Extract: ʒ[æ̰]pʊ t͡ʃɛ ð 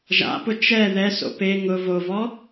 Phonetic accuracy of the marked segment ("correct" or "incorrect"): incorrect